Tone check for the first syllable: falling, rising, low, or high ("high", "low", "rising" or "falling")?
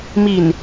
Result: low